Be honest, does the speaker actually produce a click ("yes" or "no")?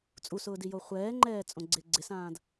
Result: yes